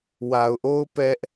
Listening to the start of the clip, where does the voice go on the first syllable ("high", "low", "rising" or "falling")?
low